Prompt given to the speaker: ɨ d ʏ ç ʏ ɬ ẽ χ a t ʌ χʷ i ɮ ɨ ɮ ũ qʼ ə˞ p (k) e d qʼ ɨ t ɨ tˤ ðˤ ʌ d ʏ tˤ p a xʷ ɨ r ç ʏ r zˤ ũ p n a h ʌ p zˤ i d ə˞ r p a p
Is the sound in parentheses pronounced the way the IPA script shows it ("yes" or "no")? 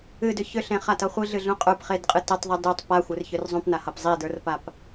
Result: no